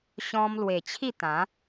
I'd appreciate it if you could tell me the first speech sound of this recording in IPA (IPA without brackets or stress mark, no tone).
ɕ